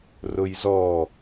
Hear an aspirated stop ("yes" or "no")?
no